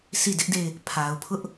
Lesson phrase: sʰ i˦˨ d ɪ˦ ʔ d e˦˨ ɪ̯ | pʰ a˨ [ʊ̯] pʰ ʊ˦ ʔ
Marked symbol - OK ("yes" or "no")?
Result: yes